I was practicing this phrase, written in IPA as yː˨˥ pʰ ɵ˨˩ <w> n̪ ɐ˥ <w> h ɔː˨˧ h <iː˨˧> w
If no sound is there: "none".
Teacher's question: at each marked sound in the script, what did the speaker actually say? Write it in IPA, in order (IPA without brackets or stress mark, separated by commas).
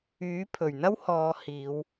ɥ, w, iː˨˧